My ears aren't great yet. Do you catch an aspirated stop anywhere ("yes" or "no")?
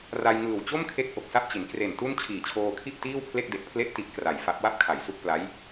yes